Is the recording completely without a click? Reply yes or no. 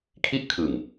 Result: yes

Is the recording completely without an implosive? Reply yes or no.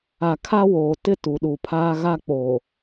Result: no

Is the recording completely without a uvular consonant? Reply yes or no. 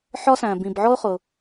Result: no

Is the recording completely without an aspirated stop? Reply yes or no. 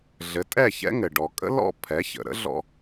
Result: no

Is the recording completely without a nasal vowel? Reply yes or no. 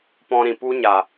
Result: no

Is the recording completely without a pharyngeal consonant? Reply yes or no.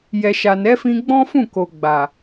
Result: yes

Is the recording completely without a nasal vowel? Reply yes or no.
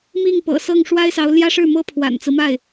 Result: yes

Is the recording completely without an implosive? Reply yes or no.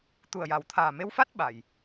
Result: no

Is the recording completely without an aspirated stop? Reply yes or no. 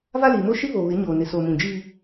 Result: yes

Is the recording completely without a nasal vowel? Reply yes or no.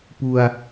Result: yes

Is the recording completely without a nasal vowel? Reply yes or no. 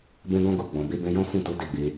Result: no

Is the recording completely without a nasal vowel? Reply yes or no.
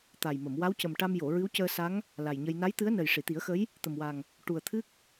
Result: yes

